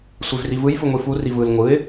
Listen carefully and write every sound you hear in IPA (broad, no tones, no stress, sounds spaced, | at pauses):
sʷ e v r i v ɯ j f ɯ ŋʷ i f u r i v ɯ l ŋʷ ɯ ɪ̯